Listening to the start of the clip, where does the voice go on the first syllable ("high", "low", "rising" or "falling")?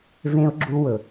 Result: high